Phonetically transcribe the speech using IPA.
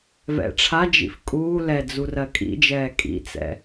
v ɛ̰ ʈ͡ʂʰ a d͡ʒ ḭ f kʼ uː l ɛ d͡z u r ɜ kʼ ḭ d͡ʒ ɛː kʼ ḭ t͡s ɛ̰

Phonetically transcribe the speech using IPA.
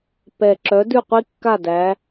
p ɛ˨˩ ǁ œ˨˦ d ʉ˥˨ qʷ i˥ kː a˥˨ d æ˨˦

